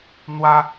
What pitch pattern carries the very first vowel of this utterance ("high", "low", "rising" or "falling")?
high